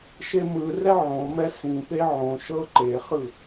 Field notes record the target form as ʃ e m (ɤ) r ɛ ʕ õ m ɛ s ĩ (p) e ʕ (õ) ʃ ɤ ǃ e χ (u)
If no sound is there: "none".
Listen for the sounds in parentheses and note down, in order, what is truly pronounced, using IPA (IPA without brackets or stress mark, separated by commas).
ɯ, p, õ, ɯ